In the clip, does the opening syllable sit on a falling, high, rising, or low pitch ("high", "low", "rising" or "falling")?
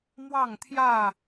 falling